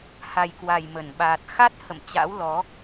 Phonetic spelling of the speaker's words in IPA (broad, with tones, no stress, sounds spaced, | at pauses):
h a˨˩ j k w a˨˩ j m ə˧˩ n ɓ aː˨˩ t̚ x a˦˥ t̚ h ə̰˧˨ m t͡ɕ a̰˧˥ w l ɔ˨˦